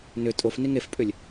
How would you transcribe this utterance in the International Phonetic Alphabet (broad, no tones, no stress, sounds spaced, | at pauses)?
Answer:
n ʏ tʼ o f n i ŋ e f pʼ ʏ lʲ